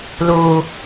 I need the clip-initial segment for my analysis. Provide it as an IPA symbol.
l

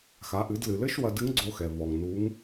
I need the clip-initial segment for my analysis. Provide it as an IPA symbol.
x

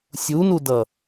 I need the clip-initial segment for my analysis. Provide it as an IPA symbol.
sʲ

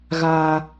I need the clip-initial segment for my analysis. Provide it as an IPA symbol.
ɣ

